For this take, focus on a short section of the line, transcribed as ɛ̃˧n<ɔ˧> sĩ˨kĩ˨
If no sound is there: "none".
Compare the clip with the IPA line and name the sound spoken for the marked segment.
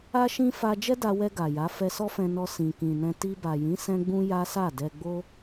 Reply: ɔ˧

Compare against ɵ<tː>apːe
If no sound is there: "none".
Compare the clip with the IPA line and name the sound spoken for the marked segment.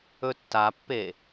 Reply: tː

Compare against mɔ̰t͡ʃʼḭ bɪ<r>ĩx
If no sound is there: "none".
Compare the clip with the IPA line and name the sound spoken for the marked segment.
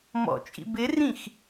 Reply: r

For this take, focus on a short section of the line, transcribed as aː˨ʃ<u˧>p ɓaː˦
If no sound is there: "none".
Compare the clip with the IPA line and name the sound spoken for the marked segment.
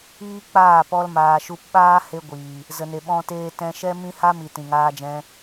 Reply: u˧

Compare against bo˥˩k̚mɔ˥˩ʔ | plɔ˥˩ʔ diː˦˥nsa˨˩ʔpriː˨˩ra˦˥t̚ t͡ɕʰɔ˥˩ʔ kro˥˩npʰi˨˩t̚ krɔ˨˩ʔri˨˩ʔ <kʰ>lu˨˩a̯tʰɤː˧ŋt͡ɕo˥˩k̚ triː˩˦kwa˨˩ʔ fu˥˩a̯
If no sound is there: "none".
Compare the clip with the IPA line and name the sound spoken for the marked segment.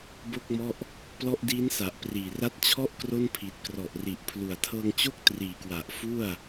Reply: pʰ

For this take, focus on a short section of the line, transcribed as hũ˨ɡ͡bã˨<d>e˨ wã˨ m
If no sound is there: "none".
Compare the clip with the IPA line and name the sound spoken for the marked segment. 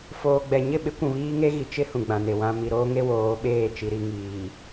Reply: n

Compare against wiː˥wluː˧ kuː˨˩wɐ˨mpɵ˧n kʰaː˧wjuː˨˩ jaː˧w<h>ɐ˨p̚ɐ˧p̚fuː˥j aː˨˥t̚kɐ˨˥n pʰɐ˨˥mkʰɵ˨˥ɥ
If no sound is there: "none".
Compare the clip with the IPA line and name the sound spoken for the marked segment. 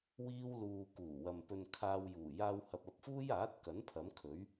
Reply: h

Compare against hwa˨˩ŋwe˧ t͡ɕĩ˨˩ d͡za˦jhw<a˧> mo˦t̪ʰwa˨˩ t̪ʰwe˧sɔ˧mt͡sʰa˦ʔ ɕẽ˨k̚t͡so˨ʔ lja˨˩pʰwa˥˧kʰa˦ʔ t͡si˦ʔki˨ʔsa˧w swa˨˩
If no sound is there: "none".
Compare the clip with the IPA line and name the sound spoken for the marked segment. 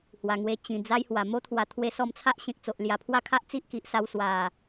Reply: a˨˩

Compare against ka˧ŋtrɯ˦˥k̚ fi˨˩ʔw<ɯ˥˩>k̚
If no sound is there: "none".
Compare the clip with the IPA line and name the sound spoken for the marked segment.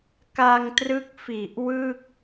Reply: ɯ˥˩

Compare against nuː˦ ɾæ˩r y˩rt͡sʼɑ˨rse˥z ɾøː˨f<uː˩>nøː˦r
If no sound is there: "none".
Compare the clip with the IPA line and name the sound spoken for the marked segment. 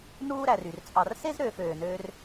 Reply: øː˩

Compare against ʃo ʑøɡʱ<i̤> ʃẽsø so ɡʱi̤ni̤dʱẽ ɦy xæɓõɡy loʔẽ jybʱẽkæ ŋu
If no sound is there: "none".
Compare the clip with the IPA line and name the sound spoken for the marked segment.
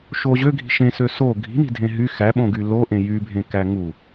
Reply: i̤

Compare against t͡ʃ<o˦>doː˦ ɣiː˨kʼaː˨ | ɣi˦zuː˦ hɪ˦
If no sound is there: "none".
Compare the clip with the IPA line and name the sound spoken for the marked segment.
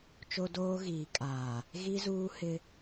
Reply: o˦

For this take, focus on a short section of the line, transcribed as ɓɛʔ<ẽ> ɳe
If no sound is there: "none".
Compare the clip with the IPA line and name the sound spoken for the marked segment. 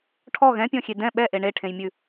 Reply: e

